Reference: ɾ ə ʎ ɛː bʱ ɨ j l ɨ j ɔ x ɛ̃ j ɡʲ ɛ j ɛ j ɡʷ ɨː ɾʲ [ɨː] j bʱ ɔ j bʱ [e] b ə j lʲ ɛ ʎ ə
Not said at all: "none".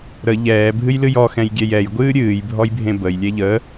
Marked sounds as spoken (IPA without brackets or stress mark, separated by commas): ɨː, ẽ